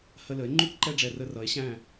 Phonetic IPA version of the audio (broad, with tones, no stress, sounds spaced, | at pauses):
h ə˧ l ə˨˦ e̯ ŋ͡ǃ u˦ k ǃ ɛ˧ ɖ͡ʐ ɛ˨ r ə˧ r ʌ˨˦ e̯ ɕ æ̃˦˨